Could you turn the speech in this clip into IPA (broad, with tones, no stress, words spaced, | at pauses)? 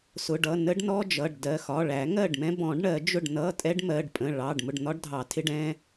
sʊ˩˧˩ɖʌ˩˧˩ nə˦˥ɖnɔ˧˥˧ d͡ʒʌ˩˧˩ɖdɜ˩˧˩xɒ˩˧˩ ɭæ˨˩˦ŋɜ˥˩ɖmɛ̃˦˥ bɔ̃˨˩˦ɖ ɳɜ˨˩˦d͡ʒʊ˥˩ɖ nʌ˧˥˧ tʼɛ˦˥ɖmɜ˩˧˩ɖpʼə̃˩˧˩ ɭɑ˩˧˩ɖ mʊ˥˩ɖn̪ɒ˦˥ɖ dʱɑ˨˩˦tʰɪ˧˥˧ɖ ɛ̃˦˥